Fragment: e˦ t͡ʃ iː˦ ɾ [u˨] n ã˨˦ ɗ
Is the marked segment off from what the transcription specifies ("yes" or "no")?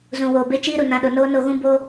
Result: no